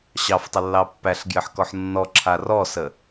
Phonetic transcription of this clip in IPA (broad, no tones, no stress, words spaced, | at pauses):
ɕɑftˤəlːɑ pːæɬɡjɘħkɔħ nːɔǁʰa rɔsə